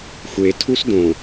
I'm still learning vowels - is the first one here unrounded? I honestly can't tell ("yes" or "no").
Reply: yes